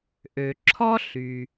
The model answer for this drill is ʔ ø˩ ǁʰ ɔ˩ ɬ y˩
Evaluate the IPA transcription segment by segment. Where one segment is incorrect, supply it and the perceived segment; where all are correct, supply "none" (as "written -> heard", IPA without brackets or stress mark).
ɔ˩ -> ɔ˥